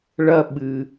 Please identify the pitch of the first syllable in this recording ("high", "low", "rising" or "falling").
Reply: high